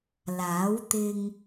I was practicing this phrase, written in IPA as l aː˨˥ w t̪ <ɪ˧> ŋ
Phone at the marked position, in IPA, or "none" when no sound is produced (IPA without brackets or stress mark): ɪ˧